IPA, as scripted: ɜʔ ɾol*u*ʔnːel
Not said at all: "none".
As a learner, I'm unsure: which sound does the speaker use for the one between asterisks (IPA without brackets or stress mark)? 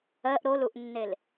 u